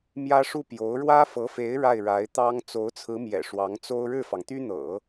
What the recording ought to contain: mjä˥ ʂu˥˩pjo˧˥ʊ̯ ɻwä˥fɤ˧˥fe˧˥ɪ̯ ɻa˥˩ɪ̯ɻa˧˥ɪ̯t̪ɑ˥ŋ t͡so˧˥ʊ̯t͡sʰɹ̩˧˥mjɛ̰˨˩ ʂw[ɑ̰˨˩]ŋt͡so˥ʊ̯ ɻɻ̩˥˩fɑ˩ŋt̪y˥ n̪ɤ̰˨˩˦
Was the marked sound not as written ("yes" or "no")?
yes